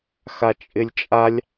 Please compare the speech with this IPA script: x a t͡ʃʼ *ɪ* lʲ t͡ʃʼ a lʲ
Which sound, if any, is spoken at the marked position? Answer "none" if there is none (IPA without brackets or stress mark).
ɪ